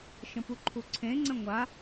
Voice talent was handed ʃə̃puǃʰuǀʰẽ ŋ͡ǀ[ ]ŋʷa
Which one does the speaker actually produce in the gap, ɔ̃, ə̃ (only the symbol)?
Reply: ə̃